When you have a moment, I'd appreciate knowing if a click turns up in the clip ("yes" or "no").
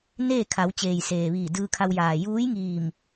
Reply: no